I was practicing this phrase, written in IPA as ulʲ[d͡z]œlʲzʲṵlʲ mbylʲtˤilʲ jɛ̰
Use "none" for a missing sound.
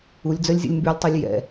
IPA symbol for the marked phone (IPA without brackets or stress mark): d͡z